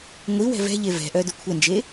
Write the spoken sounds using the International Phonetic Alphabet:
ŋʷ i w ɛ̤ v ɛ̤ ʎ e v ɛ̤ ʔ œ d ʊ kʷʰ ɛ n d͡ʒ e

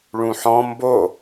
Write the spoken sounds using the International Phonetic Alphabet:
ɭ ũ ħ ɔ̃ m b o

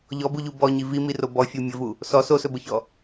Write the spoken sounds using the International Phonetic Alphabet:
ʎ ɔ b u ʎ u b ɔ ɲ i v i m i r o b ɔ fʲ u mʲ ə v u | s ɔ s o s ɵ b ə ç ɔ

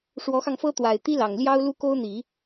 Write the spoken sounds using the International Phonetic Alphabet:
ʂ w ɔ˧˥ x ɑ˧ ŋ f ɤ˥ t̪ w a˨˩ ɪ̯ t̪ i˥ l ɑ˨˩ ŋ l j ɑ˥ ʊ̯ l u˥ k o˥ ʊ̯ n̪ i˨˩˦

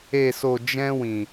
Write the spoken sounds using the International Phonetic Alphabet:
e˧ s o˧ d͡ʒ ɛ̃˦ w ĩ˧

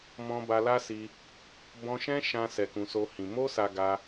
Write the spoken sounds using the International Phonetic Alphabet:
m ɔ̃˧ b a˧ l a˦ s i˧ | b ɔ̃˧ ʃ ɛ̃˦ ʃ ã˧ s ɛ˧ k ũ˧ s o˦ h ĩ˧ m o˦ s a˧ ɡ a˧

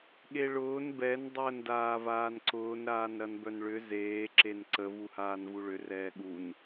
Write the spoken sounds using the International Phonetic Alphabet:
ɠ e ɭ ʊː n b ɛ n dˤ əː n d aː v aː n ǀ ʊː n ɾ aː n ɾ ɐ n b œ n ɭ ʏ z eː ǁ e n ǀ ə v u h aː n v u ɭ ʏ r ɛː ɠ u n

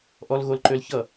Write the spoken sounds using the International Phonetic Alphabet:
ʔ ɔ l ɣ o l ǃ ø l ç ʌ

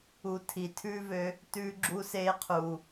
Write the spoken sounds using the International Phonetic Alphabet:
u˧ tʰ i˨ tʰ ʉː˦ v ø˧ | t ʉː˦ ɡ͡ǁ u˦ s eː˦ qʰ uː˨

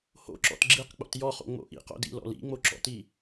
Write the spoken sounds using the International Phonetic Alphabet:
h o̰ ǁ ɔ̰ t ɡ͡ǁ i q k͡p o̰ t j ɔ χ o̰ ŋ͡m o̰ ʔ ḭ q o̰ d ḭ l ɔ̰ l ḭ ŋ͡m o ǁ ɔ̰ t i

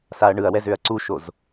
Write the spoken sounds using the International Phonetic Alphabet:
s a ɐ̯ ɳ ɯ ɐ̯ w ɛ z ø ɐ̯ ǀ u ʃ o z

